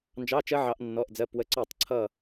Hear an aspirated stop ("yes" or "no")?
yes